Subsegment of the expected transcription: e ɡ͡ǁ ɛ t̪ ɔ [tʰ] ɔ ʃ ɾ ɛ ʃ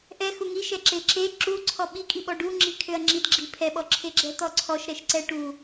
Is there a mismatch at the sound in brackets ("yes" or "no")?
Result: yes